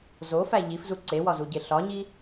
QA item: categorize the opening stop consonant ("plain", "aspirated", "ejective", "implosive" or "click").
click